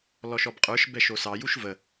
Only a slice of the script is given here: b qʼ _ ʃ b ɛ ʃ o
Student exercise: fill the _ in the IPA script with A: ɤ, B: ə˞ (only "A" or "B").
B